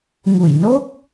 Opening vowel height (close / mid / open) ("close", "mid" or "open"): close